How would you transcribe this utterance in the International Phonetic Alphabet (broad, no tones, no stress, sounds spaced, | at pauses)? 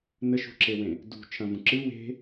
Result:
n ə ʃ ṳ ǁ e w ẽ | d ṳ t͡ʃʰ ɐ̃ v ũ ǁ ɨ w e̤